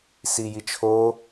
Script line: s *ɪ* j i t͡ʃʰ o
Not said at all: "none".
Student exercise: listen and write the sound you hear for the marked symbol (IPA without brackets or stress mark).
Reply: i